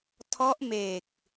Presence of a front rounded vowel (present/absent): absent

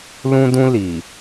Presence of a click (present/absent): absent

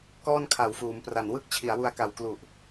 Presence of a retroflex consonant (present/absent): absent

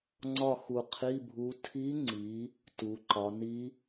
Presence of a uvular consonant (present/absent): present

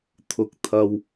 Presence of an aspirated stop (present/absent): present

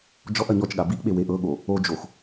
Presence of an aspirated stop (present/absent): absent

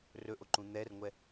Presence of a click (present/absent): present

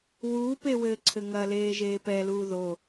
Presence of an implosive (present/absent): absent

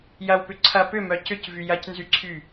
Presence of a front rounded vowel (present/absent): present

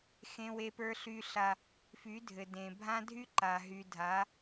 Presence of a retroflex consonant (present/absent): absent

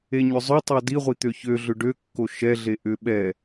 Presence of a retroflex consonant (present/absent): present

